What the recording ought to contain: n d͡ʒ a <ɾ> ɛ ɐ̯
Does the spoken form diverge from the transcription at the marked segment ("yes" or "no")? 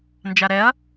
no